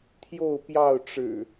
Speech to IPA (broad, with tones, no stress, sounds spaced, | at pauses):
t̪ʰ j o˥˨ ʊ̯ p j ɑ˥˨ ʊ̯ ʈ͡ʂ ɻ̩˨˩